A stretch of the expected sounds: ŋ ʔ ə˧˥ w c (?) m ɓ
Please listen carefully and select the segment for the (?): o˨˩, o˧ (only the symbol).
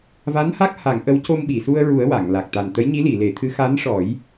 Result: o˧